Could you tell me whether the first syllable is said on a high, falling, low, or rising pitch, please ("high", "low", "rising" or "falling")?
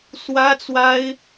high